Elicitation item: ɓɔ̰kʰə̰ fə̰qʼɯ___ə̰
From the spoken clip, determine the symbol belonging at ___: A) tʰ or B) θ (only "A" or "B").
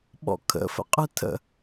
A